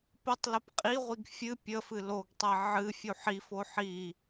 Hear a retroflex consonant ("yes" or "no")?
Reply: no